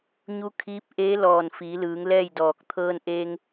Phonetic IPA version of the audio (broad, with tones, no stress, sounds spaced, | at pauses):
ɲ u˧˥ kʰ iː˧˥ p̚ ʔ eː˧˥ l ɔː˧˩ n f iː˩˧ l ɯː˩˧ ŋ l ɛː˥˨ j d ɔː˧˩ k̚ t̪ʰ ɤː˧ n ʔ eː˧ ŋ